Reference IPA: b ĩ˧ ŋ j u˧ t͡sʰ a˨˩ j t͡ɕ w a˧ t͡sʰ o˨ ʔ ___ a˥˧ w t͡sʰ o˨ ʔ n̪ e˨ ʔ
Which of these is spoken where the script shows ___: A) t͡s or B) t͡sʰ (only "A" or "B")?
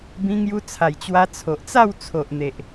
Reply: A